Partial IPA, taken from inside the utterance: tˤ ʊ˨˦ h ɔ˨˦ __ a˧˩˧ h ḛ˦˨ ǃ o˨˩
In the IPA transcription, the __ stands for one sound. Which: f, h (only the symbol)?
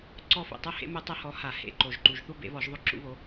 h